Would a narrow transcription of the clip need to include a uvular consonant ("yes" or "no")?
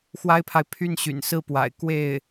no